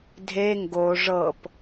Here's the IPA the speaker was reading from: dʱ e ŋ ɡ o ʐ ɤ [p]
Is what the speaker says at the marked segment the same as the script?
yes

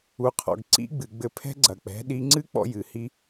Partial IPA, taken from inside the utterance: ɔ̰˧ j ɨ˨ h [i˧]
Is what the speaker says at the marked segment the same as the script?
no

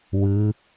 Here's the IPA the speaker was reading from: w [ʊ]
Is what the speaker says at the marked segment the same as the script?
no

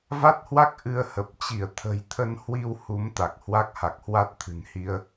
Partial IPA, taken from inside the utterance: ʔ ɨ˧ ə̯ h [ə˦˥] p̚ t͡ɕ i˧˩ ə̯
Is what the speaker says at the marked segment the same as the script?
no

